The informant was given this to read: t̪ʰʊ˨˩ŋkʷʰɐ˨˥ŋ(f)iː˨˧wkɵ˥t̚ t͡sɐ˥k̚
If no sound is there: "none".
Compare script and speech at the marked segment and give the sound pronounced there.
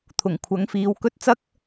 f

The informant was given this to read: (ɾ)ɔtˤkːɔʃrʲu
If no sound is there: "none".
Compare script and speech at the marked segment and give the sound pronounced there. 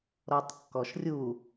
ɾ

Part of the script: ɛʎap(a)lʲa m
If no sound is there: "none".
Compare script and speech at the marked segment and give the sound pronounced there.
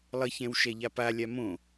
a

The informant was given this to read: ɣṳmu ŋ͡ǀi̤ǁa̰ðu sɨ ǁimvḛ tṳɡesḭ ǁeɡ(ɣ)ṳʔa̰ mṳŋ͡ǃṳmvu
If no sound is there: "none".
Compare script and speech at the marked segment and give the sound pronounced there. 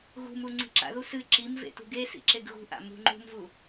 ɣ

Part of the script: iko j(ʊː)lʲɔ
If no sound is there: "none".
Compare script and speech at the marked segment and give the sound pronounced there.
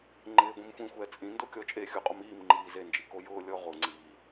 ʊː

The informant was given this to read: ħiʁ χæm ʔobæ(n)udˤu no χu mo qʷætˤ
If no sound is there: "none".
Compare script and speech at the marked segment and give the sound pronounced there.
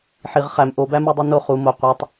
m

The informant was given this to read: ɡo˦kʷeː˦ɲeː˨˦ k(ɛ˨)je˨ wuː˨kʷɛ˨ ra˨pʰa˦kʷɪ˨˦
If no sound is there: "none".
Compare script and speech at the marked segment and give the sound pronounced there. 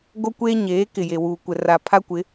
ɪ˨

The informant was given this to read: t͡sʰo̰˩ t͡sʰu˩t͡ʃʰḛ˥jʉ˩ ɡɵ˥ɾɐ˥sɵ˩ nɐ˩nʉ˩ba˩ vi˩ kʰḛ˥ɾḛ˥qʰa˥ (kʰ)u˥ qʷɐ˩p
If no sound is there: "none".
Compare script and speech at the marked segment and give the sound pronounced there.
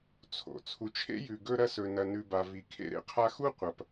x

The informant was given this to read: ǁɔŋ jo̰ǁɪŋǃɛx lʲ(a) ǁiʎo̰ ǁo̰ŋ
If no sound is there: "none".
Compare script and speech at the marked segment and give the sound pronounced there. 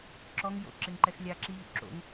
a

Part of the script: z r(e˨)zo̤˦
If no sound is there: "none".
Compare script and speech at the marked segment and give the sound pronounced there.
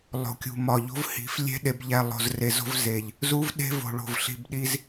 e˨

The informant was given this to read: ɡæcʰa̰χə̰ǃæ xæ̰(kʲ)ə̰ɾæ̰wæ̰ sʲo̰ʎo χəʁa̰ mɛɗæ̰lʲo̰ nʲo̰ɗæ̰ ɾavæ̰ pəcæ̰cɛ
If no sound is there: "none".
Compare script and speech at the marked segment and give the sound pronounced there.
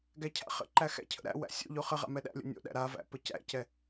cʰ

